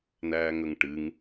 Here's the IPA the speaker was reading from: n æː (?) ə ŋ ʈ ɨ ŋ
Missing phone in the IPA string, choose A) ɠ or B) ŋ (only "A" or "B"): B